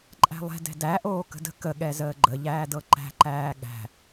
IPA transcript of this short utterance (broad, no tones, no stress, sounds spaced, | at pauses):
ǃʼ æ̤ lˠ ɛ̤ d ɛ̤ d æ ʔ oː k ə̤ d ə̤ k ə ɠ ɛ z əː ɡ͡ǃ ə ʎ æː d ɤ ǃ æ̤ ǃ æː ɠ æ̤